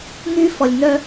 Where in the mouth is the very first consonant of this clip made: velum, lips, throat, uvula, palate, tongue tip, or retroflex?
velum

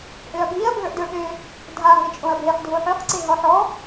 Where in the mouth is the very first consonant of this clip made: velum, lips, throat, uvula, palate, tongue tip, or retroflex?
throat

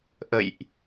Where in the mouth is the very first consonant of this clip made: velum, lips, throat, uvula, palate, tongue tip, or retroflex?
throat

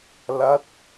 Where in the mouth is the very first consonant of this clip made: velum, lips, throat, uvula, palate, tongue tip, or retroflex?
tongue tip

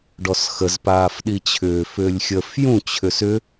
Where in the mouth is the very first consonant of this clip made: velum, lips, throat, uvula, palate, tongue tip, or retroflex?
retroflex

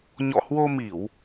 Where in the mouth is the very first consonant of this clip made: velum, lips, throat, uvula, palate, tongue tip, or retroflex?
palate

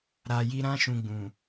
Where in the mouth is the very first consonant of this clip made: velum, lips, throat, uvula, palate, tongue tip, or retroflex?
tongue tip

